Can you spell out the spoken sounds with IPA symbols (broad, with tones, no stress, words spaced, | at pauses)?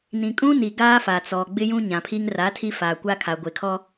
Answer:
nĩ˨kʼũ˦ni˨ ɡaː˦fa˨t͡sɔ˨ ɡ͡bɪ˦jũ˦ ɲã˨pʰi˦ŋ ra˨˦ tʰi˦faː˨ kʷa˦kʰa˨ɡʷe˨kʰɔ˦